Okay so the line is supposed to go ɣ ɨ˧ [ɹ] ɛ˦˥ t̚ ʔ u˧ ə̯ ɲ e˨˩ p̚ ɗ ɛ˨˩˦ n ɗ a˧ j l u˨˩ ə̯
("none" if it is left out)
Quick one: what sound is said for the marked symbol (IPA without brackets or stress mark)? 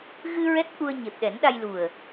ɹ